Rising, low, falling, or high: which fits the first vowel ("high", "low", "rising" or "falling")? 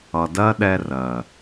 low